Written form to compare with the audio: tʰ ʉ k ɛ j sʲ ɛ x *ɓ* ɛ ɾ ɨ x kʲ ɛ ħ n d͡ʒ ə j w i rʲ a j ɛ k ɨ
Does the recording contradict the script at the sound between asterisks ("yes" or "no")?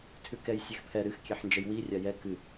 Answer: yes